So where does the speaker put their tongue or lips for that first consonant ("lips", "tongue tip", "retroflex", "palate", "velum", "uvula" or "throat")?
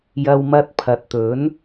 palate